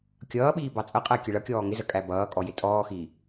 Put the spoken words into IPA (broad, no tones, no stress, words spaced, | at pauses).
kʲʌːɓiː bɑt͡sʼʌqʼæ kʲəɭʌkʲɔː ŋɪzə kʼæbʌːkʼɔ jɪtʼɔːxiː